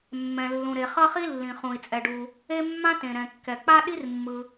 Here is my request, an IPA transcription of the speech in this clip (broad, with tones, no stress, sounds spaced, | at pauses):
mː ɛ̃˩ lː ũ˩ ɾ e˩ χ ʌ˥ χ i˥ lː ĩ˩ χ ũ˩ i̯ t͡sʼ ɛ˩ ɖ u˩ | e˥ mː ã˥ t ẽ˩ ɾ ɛ̃˩ kː ɛ˩ k͡p a˥ ɗ i˥ r mː ɯ˩